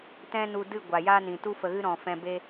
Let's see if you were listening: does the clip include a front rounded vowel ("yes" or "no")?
no